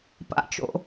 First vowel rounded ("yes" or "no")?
no